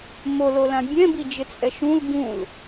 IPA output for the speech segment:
mololã bʲɛ̃bi d͡ʒɪt͡sʼɛʃũl bũl

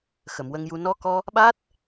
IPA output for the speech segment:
xə˨˩˨mwə˧ŋju˧ nɔ˧kɔ˧ | ɓa˦˥t̚

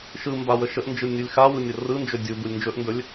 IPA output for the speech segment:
ʃɯmba wəʃəʔnd͡ʒɯ nʲulʲxawɯ nʲərɯnd͡ʒɵ dʲu bulʲnd͡ʒɵʔndɵlʲ

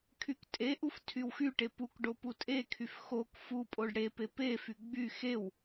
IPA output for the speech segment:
kʰyktʼeʔuf tʰywxyʈe puk ɖoputʼekʰyf xok fu pʼoɖɽepe pefy ɡ͡by xew

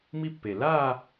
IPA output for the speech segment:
mi˥pːe˨˩ la˥˧

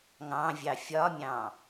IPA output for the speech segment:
ŋɑ̃vʲɑ fʲɒmʲɑ̃

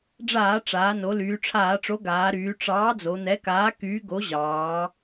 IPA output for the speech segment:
ɖ͡ʐaː˧˩˧ʈ͡ʂaː˩˧no˩˧ lyː˩˧ʈ͡ʂʰaː˧˩˧ʈ͡ʂo˨˥ɡaː˩˧ ɾyː˩˧ʈ͡ʂɑː˨˥ d͡zo˩˧n̪ɛ˨˥kaː˨˥ kyː˨˥ɡo˨˥ʑɑː˩˧

